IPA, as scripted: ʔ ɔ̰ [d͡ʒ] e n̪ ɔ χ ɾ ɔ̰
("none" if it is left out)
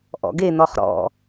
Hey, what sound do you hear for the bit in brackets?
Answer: ɡ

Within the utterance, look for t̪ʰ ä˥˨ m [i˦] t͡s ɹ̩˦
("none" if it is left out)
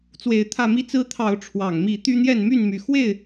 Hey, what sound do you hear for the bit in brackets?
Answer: i˦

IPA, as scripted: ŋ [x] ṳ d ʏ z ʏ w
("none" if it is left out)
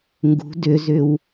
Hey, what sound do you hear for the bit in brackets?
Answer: ɡ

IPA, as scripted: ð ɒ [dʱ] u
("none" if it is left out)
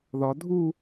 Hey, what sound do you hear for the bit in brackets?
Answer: dʱ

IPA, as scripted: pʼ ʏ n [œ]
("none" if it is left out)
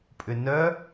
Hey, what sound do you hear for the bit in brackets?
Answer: œ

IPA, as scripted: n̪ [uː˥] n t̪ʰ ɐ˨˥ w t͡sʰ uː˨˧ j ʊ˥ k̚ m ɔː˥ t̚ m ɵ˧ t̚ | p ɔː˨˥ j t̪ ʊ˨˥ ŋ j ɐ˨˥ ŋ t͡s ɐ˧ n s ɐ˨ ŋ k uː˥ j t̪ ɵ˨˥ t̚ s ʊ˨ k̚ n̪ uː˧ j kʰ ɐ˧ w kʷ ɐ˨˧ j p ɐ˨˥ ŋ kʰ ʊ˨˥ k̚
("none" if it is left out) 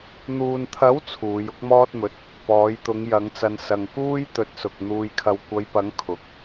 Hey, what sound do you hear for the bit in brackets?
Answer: uː˨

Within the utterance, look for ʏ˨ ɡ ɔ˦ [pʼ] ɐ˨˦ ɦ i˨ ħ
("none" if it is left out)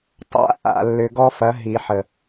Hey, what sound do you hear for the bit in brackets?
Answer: f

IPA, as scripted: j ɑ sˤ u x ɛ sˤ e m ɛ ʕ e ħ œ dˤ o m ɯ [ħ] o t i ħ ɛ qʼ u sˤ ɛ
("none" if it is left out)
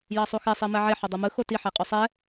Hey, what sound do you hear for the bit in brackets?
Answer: x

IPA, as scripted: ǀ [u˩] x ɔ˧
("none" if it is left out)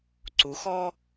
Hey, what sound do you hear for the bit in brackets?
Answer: u˩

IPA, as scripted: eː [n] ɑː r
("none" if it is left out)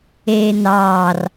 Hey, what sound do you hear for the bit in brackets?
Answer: n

